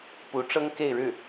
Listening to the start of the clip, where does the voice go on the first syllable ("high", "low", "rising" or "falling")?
rising